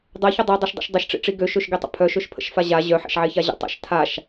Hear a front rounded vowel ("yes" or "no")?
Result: yes